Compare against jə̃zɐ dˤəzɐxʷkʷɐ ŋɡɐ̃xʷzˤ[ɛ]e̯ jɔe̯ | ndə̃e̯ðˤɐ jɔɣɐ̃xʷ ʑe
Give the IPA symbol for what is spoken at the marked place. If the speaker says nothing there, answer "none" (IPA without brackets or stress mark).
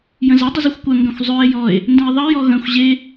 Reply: ø